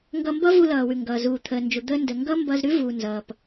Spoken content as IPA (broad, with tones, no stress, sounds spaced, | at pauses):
ŋ ɡ ʌ˧ m b ʌ˥ v u˧ l ʌː˩ w ʉ˩ ŋ ɡ ʌː˩ z uː˩ t̪ʰ əː˩ n d͡ʒ u˩ d̪ əː˧ n d ə˩ ŋ ɡ ʌ˥ m b ʌ˧ z ɾ ʉ˥ v uː˩ n z ʌː˩ p